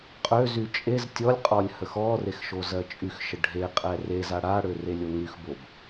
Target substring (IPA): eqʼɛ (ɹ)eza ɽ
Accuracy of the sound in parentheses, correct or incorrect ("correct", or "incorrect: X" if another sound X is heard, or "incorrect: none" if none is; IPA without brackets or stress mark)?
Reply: incorrect: r